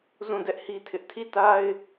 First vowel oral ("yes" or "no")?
no